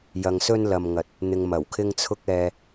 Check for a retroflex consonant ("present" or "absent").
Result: absent